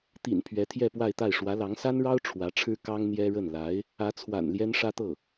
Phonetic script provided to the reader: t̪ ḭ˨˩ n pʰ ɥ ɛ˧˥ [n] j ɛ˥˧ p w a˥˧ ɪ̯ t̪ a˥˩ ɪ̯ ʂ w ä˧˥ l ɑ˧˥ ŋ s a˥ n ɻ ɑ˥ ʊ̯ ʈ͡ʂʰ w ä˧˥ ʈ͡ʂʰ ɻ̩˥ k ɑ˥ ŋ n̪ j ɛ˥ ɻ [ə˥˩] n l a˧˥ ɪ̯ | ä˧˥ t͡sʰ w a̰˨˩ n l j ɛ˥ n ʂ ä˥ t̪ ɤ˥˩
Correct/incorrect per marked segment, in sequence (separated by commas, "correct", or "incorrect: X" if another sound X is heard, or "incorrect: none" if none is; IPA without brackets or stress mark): incorrect: t̪ʰ, correct